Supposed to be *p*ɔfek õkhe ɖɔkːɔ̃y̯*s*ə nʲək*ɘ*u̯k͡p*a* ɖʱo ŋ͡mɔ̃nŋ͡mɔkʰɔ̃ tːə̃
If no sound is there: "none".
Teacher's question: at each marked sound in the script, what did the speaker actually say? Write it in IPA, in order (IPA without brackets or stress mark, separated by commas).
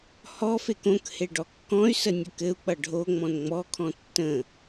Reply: h, s, ɘ, ʌ